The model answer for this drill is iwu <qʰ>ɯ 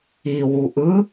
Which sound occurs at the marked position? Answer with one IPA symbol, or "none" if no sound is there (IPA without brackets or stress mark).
ʔ